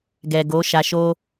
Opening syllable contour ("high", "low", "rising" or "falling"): low